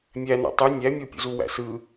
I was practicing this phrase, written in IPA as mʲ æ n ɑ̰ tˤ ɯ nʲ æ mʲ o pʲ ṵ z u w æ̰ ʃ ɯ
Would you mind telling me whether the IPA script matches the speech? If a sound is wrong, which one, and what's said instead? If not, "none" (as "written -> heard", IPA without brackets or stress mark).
ʃ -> s